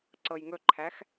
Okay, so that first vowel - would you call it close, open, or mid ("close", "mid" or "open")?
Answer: mid